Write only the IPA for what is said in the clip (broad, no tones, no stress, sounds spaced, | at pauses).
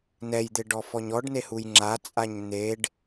n ɛ j d̪ ɪ ɖ ɔ f ɔ ɲ ɔ ɖ n e h u j ŋ͡ǁ a t͡sʼ a ɲ n̪ e ɖ